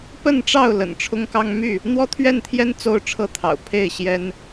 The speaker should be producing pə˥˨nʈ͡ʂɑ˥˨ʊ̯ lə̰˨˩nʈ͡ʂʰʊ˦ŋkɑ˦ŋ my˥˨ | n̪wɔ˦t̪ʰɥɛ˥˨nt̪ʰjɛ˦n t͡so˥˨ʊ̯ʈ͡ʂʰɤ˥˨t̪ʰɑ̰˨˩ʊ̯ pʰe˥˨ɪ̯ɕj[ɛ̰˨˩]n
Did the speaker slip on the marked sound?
yes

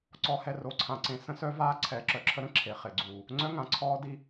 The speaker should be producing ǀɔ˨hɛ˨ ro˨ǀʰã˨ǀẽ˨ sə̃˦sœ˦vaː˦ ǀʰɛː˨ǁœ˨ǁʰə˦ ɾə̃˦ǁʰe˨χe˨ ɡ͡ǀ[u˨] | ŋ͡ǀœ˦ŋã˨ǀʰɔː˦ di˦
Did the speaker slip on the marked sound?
no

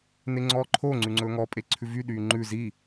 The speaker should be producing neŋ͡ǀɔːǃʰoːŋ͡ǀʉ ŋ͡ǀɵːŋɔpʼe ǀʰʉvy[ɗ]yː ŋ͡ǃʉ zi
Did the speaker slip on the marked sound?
no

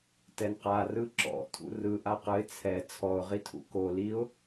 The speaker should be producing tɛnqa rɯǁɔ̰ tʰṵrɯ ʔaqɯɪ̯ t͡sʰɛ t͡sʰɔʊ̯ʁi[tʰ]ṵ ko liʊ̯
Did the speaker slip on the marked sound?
no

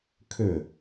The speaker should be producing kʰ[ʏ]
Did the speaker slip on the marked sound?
no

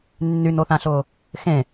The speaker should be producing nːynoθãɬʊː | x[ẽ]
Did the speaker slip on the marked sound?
no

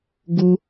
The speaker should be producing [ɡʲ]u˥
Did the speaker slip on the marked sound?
yes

